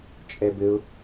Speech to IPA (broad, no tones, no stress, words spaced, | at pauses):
t͡ʃʼɛbɘʊ̯